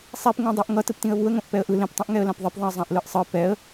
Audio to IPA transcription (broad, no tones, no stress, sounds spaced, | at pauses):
sˤ i p ŋ ɛ̃ dˤ e ʔ ŋ ʌ t ɯ p t ĩ ə̯ β u ə̯ ŋ õ ʔ p ɛ ə̯ ʔ ɯ l ẽ p tˤ ĩ ʔ ŋ ɛ ə̯ l ã p ðˤ e p ðˤ ĩ ə̯ zˤ ã ʔ l ɯ ʔ sˤ ɯ p ɛ ə̯